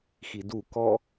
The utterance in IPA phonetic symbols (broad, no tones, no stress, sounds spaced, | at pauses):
x i d u k ɔ